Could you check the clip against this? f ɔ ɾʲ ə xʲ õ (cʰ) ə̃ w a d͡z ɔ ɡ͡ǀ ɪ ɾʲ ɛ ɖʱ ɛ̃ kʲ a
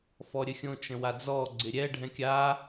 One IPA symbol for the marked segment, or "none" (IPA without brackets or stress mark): t͡ʃ